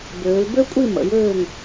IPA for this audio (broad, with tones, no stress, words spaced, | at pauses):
bøː˩˧lbø˥kʷʼi˥˨ mə̰˩˧jøː˥˨ŋ